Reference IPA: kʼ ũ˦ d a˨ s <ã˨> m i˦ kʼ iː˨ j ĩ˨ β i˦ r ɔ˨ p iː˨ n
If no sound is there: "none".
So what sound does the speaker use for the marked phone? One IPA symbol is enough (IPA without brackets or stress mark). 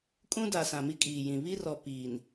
ã˨